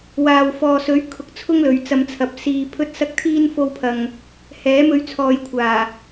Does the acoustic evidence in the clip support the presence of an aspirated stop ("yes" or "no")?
yes